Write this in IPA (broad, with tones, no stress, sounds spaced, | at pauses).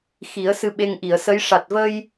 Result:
x i˨˩˦ ə̯ s ɨ˧ ɓ e˧ ŋ ʔ i˨˩˨ ə̯ s ə˧˥ j ʂ a˨˩ t̚ v ə˧ j